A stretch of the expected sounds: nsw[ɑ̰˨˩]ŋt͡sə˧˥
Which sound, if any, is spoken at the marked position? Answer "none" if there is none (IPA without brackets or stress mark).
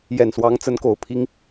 ɑ˧˥